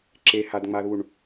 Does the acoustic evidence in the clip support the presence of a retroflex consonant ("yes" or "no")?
yes